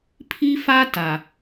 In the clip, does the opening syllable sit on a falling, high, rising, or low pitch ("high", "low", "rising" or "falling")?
high